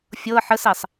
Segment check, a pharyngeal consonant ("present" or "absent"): present